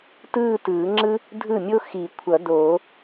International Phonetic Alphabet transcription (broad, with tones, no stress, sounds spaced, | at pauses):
t ɯː˥˧ t ɯː˨˩˦ ŋ͡ǁ ɯ˥ | dʱ ɯ˥˩ mʲ o˥ x i˨˩˦ kʷʰ ʌ˨˩˦ d oː˨˩˦